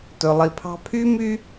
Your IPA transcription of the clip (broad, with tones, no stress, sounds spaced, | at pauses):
t ɵ˨ lˠ i˨ pʰ ɑ̤˦ pʰ y˦ m y˦